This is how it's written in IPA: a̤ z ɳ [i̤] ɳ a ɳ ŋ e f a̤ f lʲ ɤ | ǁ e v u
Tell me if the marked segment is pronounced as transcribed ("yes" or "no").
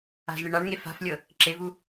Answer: no